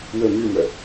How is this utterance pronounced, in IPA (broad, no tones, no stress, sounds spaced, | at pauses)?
w ə m y m œ